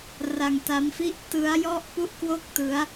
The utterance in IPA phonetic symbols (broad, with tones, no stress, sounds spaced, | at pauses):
r a˧ ŋ t a˦˥ m f i˥˩ ʔ t ɯ˦˥ a̯ j ɔ˥˩ ʔ p u˥˩ ʔ k w o˥˩ k̚ t ɯ˦˥ a̯